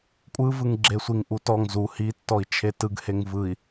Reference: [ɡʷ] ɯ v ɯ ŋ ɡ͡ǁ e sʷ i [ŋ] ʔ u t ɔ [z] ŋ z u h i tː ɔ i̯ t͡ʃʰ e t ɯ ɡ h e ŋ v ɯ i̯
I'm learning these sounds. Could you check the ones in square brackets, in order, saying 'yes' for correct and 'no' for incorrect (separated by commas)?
no, yes, no